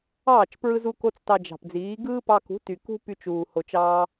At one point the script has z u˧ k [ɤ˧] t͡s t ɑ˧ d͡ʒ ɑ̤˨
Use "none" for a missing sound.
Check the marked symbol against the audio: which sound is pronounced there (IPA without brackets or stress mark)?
o˧